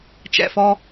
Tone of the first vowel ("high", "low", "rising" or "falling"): low